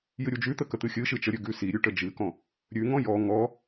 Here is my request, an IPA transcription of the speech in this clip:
j ɨ ɾʲ u d͡ʒ ʉ t̪ ə k ə t̪ ɨ xʲ ɨ ʃ ɨ t͡ʃ ə ɾʲ ʉ ɡ ʉ s i ɾʲ ʉ ʈ ə d͡ʒ ɨ k ɔ̃ | ɾʲ ʉ ŋ ɔ̃ j ɔ ŋ ɔ

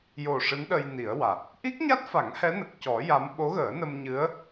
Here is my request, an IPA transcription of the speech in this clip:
j o˨˩ ʂ ɨ˧˥ n ɗ ə˧ j n i˨˩˦ ə̯ w a˨˩ t̚ | ʔ i˦˥ k̚ ɲ a˦˥ t̚ f a˨˩˦ ŋ h ɛ˧˥ n ə˨˩ k̚ c ɔ˨˩˦ j a˧˥ m ɓ o˧˥ ɣ əː˨˩˦ n ə˧ m ɲ ɨ˧˥ ə̯

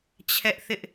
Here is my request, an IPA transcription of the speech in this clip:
t͡ɕʰ ɛ˦ ʔ θ ɪ˦ ʔ

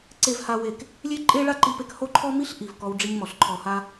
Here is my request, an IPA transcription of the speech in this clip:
ǀ e˦ v h a˦ w e˦˨ k | lʲ e˧ ǃʼ e˦ ɭ a˦ ǃ i˧ p e˧ k h o˦ ǃʰ ɔ˦ m i˦ ɬ ʔ i˨ v k ɔ˧ w ɖ͡ʐ i˧ ɲ m ɔ˨ ɬ ǃʰ ɔ˧ h a˦

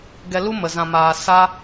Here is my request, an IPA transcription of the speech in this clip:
ɡ ɛ˧ l u˦ m ə˨ z ã˨ m aː˨ s a˦

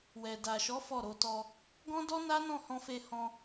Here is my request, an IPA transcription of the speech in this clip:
w ɛ˨ d a˨ ʃ ɔ˨˦ f ɔ˦˨ ɾ o˧ t ɔ˧ | ɡ ɔ̃˦ d ɔ˦ n a˦ n ɔ̃˦˨ h ɔ̃˧ f e˧ h ɔ̃˧

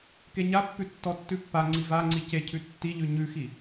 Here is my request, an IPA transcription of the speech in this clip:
k e ɲ a pː ʉ tː ɔ tː ʉ pː a ŋ͡ǀ i v a ŋ͡ǀ i c e cʰ ʉ tː i ʎ ʉ ɲ ʉ x i

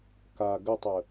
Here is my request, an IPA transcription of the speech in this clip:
k a ɡ ə tˤ ə

